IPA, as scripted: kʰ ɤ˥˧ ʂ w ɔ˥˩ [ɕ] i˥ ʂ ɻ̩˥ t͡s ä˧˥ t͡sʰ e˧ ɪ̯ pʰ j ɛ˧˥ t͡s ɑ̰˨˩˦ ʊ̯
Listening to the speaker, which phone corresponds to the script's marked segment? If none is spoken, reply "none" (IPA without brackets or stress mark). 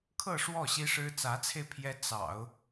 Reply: ɕ